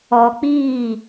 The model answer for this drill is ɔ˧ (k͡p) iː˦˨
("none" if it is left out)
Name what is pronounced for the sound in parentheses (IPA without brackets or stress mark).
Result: k͡p